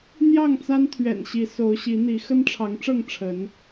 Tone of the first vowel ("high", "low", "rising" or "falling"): falling